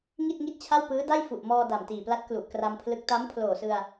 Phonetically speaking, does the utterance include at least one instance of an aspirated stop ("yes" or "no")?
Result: yes